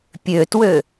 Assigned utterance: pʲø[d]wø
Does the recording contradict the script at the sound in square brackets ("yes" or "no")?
yes